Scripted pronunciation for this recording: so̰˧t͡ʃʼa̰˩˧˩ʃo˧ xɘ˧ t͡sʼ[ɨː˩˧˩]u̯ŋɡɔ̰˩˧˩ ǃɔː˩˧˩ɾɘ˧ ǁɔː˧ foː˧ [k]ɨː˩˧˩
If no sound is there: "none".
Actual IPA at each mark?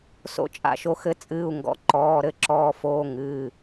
ɨː˩˧˩, ŋ

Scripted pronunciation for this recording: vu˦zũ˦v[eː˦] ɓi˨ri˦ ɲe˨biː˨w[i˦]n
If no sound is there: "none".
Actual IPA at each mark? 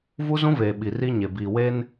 eː˨, e˦

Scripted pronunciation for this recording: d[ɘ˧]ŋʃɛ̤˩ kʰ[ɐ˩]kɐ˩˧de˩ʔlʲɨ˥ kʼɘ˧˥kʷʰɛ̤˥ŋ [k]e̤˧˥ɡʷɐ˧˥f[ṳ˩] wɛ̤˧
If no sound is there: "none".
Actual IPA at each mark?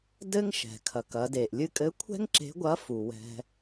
ɘ˥, ɐ˩, ǁ, u˩

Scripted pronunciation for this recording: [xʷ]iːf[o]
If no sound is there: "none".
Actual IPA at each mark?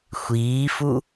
xʷ, u

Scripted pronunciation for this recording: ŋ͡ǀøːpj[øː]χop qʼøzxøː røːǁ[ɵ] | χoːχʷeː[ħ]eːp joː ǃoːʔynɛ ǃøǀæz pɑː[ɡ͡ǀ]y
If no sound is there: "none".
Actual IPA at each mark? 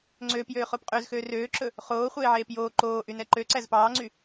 øː, ɵ, ʕ, ŋ͡ǀ

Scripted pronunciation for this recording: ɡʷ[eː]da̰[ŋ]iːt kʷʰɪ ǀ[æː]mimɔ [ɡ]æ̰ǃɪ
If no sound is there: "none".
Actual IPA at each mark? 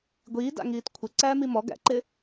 iː, ŋ, æː, ɡ

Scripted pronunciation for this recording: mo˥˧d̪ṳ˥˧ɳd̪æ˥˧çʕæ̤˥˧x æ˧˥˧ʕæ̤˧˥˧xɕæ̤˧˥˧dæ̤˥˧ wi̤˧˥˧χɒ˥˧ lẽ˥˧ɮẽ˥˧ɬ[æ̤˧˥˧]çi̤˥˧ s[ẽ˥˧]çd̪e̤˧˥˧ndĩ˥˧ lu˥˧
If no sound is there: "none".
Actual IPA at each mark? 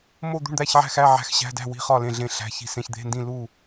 æ̤˧˥˧, ẽ˧˥˧

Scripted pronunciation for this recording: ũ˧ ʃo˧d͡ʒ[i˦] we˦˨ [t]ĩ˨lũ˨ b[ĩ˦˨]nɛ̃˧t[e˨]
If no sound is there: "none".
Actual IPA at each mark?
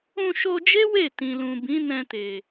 e˦, t, ĩ˨˦, e˨

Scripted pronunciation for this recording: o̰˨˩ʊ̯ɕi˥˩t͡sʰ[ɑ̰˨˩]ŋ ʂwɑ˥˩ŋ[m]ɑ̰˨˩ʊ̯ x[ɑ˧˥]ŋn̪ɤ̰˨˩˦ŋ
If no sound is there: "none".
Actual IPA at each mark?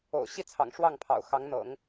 ɑ̰˨˩, pʰ, ɑ˧˥

